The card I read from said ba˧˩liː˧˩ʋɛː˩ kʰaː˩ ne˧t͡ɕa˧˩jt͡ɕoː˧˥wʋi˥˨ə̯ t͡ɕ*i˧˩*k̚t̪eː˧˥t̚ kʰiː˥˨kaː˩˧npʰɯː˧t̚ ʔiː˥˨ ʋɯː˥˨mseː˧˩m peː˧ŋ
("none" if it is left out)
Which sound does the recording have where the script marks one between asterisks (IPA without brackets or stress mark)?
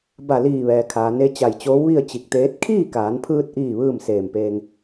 i˧˩